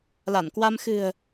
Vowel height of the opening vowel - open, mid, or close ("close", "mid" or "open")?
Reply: open